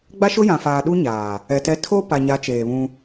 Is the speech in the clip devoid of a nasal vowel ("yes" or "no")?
no